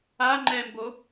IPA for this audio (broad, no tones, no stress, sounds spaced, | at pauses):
a ŋ͡ǃ ɛ m b o